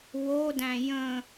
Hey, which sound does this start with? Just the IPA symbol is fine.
w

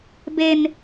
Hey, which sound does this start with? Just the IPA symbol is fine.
b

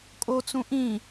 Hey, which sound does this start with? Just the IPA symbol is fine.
kʼ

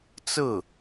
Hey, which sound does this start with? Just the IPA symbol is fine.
t͡s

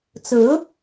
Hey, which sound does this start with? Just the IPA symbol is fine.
t͡s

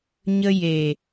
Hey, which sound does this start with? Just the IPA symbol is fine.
ɲ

